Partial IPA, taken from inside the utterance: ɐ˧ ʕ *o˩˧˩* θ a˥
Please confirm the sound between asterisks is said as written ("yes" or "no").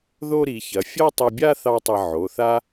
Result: yes